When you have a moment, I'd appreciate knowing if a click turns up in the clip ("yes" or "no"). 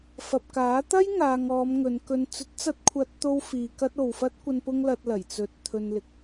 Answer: no